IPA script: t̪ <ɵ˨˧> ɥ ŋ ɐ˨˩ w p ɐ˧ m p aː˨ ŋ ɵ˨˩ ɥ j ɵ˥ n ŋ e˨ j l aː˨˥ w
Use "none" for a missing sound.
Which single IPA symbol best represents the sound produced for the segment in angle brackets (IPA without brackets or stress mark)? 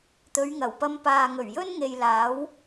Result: ɵ˨˧